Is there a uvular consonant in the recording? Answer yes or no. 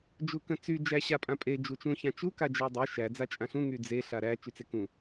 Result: no